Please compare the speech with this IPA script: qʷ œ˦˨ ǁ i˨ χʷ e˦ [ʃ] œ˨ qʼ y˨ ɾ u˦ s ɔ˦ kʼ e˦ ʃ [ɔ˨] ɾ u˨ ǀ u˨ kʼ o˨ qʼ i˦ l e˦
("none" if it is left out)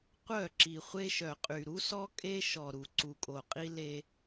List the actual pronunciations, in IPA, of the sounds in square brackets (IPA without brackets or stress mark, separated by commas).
ʃ, ɔ˨